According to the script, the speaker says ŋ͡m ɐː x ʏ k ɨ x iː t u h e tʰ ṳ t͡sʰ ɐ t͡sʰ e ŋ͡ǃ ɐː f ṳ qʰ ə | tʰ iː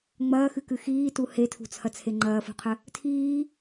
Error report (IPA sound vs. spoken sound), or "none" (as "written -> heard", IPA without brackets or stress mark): ʏ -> ɨ